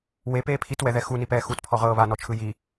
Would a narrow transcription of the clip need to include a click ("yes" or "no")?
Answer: no